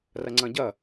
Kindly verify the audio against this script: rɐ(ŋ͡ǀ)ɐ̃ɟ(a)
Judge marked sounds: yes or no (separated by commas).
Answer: yes, no